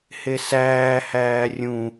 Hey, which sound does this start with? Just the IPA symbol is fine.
h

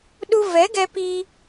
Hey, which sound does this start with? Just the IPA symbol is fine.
ɗ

